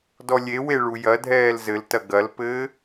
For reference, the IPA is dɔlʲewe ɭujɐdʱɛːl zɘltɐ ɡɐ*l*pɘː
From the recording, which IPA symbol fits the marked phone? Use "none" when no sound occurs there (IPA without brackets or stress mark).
l